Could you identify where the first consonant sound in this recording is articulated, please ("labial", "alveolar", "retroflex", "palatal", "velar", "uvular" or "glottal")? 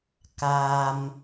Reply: velar